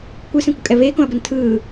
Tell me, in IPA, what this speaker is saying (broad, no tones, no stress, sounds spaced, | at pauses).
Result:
kʷ ɯ s ɛ̃ kʷ ʌ kʼ ɛ β eː k õ ɐ̯ b ʌ n tʰ ɯː